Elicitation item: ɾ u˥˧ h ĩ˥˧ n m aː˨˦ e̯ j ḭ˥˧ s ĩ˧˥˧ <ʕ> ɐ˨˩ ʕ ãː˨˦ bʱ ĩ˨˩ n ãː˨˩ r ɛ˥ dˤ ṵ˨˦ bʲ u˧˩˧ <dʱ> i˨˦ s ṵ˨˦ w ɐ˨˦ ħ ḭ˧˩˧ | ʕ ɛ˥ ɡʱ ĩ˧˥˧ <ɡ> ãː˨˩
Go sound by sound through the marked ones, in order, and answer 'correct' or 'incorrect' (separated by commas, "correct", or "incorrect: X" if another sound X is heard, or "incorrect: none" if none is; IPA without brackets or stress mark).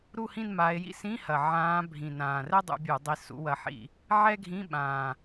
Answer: incorrect: h, incorrect: dˤ, incorrect: ɓ